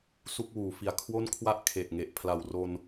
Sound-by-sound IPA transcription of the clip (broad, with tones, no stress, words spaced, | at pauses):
su˥˩k̚wuː˩˦ fi˨˩a̯kʰwo˥˩nkʰwa˥˩ʔ kʰe˨˩ʔŋe˨˩ʔ pʰla˨˩wro˧n